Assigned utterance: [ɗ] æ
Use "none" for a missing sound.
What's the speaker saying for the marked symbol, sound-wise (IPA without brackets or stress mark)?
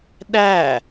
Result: ɗ